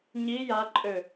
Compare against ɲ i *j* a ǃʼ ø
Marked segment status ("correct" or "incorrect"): correct